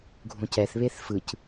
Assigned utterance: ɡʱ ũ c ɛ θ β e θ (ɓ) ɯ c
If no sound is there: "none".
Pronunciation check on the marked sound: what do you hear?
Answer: f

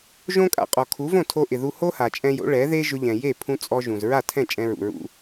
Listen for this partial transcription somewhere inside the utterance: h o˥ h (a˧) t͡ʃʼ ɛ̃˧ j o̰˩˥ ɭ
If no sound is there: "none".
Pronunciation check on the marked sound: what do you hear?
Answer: a˩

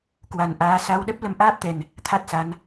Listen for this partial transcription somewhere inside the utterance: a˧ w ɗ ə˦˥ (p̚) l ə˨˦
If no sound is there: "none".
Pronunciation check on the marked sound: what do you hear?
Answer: p̚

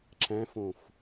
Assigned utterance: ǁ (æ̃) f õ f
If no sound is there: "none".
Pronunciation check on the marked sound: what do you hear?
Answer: æ̃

